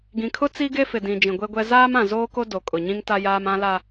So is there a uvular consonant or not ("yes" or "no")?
no